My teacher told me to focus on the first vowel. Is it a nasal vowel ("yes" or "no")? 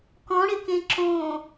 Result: yes